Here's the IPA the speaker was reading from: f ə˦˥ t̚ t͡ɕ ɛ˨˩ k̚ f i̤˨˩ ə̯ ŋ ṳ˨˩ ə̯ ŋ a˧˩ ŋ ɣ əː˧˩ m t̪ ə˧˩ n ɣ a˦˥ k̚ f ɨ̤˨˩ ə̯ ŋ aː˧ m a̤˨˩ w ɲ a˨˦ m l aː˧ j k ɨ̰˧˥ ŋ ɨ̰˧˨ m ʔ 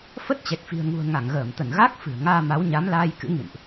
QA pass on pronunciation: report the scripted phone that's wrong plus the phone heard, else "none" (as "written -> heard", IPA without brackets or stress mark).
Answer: a̤˨˩ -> a˨˦